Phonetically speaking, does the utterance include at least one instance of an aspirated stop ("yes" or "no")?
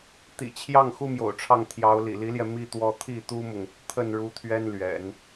yes